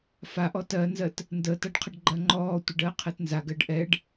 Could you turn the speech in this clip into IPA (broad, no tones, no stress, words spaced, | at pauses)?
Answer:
faʔɔ tɜnzɜt | ndəːtaɖqʰəɖɡ͡ǃɜ ŋ͡ǃɔː tʷəɖɜːqʰɛt nzaɡɜɖ ʔɛɖ